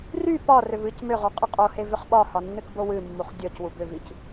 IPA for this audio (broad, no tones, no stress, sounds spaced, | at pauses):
r y p ɒ r ʏ v ɨ c m ʏ ʁ u qʼ ə qʼ o h e v ʏ χ ɓ ɒ h ɒ nː ɨ k b o w ɨ mː u χ dʲ ɔ c w u b ʏ v i c